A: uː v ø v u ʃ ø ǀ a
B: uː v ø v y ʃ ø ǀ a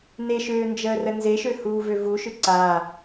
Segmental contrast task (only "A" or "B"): A